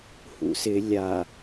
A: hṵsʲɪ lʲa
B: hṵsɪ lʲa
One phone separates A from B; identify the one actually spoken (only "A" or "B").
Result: B